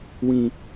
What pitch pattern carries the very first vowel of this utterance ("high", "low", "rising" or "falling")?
low